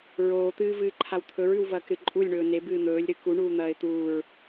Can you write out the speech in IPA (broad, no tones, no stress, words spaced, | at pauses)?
ɹoːt̪ɨːvɨːǃʰaw t̪ʰɵɹʉwvɐːkɾɨ ǃʼulʲɳɵː ne bɨːn̪ɵːlʲ ɾɨkuɳuː n̪ɐːɪ̯t̪uːɹ